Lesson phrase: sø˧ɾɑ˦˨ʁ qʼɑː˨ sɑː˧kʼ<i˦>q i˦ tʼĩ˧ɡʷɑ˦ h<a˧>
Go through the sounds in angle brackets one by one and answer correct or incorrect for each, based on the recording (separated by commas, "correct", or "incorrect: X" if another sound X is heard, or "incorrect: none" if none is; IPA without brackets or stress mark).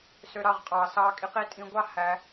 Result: incorrect: i˧, incorrect: æ˧